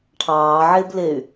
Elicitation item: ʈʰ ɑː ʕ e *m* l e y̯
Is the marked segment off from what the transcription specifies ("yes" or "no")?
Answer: yes